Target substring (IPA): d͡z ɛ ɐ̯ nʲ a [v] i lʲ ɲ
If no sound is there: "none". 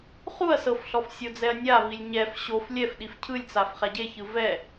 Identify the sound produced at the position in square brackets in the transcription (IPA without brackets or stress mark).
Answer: v